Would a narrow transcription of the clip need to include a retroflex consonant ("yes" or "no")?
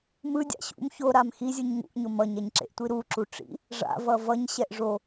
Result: yes